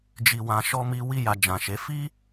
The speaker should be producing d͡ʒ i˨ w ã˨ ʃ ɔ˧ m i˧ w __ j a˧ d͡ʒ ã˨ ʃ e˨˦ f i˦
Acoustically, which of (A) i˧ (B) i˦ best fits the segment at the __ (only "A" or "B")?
B